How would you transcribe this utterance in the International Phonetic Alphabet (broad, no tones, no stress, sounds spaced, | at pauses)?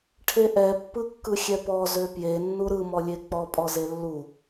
ʈʰ e ʔ ɛ pː ɯ kː ɯ xʲ ɛ p ɔ z ø p j e nː u ɾ ɯ m ɔ lʲ e k͡p ɔ pʼ ɔ z e lː u